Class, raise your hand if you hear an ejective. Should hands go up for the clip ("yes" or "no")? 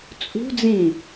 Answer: yes